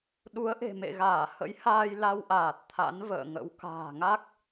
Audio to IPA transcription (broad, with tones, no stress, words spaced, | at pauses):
ɗu˨˦ə̯ʔe̤˨˩mḛ˧˨ɣaː˧˩ hə̰˧˥jhaː˧j la˧wʔaː˨˩t̚ t̪ʰa̰˧˥nvə̰ː˧˨ŋə̰˧˥w ka̤ː˨˩ŋa˦˥k̚